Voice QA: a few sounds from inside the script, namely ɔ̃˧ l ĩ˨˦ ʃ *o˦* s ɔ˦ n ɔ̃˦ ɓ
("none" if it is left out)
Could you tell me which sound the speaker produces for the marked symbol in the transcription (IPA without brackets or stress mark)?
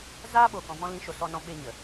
o˨